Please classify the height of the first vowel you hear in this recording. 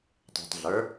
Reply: high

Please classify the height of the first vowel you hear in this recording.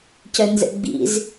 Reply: mid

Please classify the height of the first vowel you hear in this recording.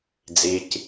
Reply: high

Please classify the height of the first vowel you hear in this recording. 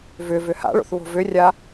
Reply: high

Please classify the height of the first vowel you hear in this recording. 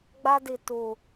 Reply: low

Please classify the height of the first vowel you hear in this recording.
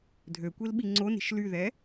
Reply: mid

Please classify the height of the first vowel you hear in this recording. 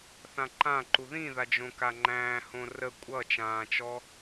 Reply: low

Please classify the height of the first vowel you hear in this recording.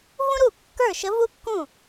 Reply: high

